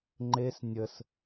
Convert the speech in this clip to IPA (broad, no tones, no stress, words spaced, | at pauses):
ŋ͡ǃes nʲəs